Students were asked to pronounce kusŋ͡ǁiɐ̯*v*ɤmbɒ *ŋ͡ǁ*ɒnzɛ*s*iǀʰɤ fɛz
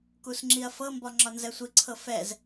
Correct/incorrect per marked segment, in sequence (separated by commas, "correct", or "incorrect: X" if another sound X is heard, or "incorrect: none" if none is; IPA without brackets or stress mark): incorrect: f, correct, incorrect: sʷ